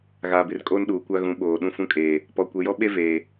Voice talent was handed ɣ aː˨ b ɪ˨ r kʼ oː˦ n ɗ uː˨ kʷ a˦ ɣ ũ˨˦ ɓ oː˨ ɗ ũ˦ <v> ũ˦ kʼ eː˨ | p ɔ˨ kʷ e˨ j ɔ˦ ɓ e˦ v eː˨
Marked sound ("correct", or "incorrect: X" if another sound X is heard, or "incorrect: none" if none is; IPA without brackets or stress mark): incorrect: f